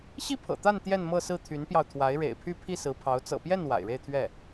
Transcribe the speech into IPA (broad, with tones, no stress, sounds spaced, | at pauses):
ɕ i˥ pʰ ɤ̰˨˩ t̪ a˥˧ n t̪ j ɛ˥˧ n m ɤ˥˧ s ɹ̩˥˩ t̪ʰ y˧˥ n p j ɑ˧ ʊ̯ t̪ʰ w a˧˥ ɪ̯ ɻ ḛ˨˩ ɪ̯ pʰ y˥˧ pʰ i˥˩ s ɹ̩˧˥ pʰ ɑ˧˥ ʊ̯ t͡s ɤ̰˨˩ p j ɛ˥˩ n w a̰˨˩ ɪ̯ ɻ e˥˧ ɪ̯ t̪ʰ ɥ ɛ˥˩